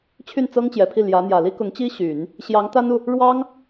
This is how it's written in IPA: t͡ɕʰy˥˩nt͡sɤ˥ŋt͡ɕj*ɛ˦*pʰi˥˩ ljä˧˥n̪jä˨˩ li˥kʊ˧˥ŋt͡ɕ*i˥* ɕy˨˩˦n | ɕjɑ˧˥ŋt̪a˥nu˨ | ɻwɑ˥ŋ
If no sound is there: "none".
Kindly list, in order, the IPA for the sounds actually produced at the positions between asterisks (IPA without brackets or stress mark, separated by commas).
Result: ɛ˨˩, i˥